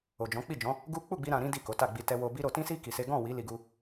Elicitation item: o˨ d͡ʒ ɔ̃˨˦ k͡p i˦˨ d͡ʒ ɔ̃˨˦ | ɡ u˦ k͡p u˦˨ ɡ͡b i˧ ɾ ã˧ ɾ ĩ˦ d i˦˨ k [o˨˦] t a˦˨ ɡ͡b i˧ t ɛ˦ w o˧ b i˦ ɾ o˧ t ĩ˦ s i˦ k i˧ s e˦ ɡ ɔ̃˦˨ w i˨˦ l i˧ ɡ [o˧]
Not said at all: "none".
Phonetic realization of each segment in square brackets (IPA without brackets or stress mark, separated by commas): o˨˦, u˧